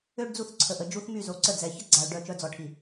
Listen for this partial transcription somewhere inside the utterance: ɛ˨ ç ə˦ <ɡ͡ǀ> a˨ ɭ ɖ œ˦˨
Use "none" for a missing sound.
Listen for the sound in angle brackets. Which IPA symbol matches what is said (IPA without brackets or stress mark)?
ɡ͡ǀ